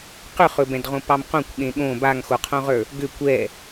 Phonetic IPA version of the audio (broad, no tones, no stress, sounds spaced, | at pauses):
q ʏ χ ɵ b ɛ̃ d ʁ õ p ɑ m q õ kʷ ɠ ẽ ɠ õ b a ŋ x o qʰ õ ʁ ə˞ | ɡ ʏ kʷ ɛ